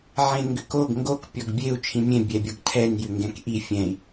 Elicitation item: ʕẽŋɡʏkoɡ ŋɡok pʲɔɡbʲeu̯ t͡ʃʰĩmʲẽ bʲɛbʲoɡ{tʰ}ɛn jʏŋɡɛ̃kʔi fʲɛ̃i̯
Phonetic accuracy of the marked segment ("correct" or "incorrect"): correct